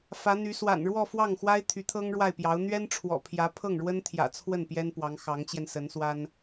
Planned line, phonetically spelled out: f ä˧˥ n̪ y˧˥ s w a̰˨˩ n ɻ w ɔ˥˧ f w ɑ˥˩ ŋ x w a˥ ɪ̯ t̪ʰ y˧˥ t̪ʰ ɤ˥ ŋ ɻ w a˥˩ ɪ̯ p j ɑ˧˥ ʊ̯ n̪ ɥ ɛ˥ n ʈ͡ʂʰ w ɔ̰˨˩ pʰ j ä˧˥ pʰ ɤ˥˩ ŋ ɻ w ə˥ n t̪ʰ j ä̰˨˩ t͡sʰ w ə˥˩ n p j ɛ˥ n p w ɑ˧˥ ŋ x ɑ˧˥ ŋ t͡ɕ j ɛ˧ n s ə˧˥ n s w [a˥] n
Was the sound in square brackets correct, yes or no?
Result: yes